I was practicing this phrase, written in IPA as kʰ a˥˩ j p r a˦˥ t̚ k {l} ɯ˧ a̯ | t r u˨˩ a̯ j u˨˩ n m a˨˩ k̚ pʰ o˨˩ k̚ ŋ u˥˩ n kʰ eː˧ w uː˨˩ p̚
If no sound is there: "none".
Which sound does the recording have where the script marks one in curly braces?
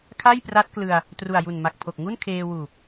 l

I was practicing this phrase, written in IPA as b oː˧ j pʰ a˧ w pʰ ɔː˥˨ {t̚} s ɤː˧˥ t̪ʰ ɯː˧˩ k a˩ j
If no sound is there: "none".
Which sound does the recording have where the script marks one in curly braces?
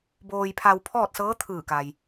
t̚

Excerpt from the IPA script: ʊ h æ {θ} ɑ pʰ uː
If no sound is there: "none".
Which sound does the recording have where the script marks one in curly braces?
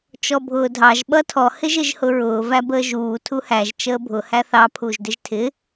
θ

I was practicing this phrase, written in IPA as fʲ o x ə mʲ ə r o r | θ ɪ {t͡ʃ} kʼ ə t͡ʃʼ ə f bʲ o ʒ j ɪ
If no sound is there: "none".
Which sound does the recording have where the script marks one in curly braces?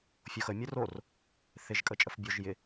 ʒ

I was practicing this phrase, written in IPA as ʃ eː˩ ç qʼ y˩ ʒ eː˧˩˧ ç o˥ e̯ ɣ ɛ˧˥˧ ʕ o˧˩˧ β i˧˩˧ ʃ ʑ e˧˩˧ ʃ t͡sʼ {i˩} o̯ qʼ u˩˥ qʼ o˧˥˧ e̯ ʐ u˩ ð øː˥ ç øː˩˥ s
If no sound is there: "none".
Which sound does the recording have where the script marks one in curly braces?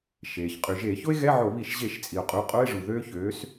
i˩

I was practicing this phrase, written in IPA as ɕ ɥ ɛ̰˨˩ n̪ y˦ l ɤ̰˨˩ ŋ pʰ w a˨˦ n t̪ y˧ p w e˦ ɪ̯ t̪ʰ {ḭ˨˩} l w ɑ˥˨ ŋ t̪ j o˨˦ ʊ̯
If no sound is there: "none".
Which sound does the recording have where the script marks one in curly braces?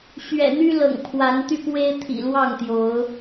ḭ˨˩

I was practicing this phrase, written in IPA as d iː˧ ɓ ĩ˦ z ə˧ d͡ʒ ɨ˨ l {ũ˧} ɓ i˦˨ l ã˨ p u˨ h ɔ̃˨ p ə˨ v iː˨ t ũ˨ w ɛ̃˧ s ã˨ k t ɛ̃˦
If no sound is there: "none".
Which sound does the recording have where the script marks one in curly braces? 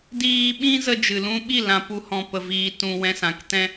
ũ˦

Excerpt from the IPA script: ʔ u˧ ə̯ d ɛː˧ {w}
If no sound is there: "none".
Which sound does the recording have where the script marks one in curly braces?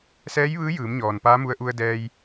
j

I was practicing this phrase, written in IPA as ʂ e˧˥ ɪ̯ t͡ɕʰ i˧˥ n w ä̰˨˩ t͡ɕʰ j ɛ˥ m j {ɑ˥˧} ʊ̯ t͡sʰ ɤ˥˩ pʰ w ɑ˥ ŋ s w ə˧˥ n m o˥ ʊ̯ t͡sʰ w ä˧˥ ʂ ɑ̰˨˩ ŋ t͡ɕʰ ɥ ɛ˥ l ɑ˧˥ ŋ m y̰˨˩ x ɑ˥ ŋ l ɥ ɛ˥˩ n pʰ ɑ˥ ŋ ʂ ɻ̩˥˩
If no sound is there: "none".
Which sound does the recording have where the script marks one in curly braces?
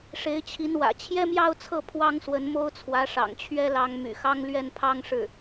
ɑ˥˧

